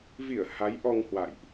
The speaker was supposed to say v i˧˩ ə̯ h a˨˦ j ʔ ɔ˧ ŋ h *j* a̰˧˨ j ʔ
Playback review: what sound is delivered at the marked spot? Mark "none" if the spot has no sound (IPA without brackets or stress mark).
w